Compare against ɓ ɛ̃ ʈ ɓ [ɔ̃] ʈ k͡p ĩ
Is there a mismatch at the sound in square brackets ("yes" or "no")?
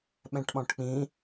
no